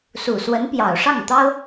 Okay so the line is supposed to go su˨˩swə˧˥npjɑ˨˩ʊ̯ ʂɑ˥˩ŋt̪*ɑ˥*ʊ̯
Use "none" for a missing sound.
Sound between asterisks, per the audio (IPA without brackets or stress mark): ɑ˥